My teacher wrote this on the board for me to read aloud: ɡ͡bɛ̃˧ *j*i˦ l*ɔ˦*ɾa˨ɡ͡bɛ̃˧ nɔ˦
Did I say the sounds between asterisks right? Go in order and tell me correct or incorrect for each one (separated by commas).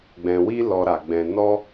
incorrect, incorrect